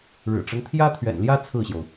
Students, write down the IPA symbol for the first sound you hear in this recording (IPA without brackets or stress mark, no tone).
ɻ